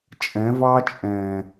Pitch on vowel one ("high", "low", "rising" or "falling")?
rising